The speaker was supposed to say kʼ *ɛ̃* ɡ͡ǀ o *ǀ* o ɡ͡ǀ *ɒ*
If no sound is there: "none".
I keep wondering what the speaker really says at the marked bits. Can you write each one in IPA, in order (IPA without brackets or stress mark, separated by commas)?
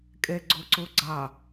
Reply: ɛ, ǀ, ɑ